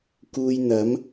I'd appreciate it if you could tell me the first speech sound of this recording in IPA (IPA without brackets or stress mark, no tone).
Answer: k